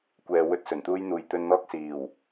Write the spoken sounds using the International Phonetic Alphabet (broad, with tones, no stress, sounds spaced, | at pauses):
kʷ ɛː˨ w ɵ˧ t̚ s ɵ˨˩ n t̪ uː˥ j n̪ uː˨ j t̪ ɵ˧ n n̪ ɔː˥ k̚ s iː˨˩ w